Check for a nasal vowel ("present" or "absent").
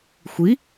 absent